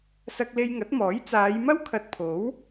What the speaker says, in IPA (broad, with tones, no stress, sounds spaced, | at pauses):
s ɐ˧ k̚ l e˧ j ŋ ɐ˨˥ t̚ m ɔː˨˥ j t͡s aː˨˧ j m ɐ˥ w kʰ ɐ˨ t̚ pʰ o˨˥ w